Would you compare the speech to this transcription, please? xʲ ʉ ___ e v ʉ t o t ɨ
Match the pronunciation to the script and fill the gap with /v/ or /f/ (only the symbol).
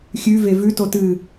v